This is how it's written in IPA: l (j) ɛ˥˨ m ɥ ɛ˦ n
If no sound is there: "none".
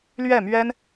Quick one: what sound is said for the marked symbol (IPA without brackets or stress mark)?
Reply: ɥ